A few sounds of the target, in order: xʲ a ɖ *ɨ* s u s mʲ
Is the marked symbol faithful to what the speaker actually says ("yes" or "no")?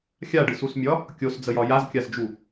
yes